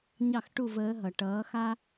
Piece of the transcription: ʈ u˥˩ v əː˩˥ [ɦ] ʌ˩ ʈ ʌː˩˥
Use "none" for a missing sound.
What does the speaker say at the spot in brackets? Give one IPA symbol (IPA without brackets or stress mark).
ɦ